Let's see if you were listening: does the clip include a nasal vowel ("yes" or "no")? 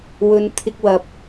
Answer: no